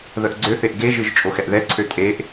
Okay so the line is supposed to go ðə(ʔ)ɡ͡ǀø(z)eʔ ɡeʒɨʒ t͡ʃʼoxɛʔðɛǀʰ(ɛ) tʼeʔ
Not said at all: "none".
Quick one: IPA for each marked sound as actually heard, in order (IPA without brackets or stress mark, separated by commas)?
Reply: ʔ, θ, ø